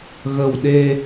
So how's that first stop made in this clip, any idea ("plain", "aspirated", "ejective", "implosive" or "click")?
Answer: implosive